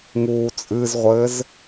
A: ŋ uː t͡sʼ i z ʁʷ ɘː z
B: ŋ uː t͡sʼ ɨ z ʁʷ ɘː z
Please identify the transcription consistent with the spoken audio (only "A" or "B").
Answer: B